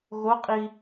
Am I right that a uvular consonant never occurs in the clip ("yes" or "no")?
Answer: no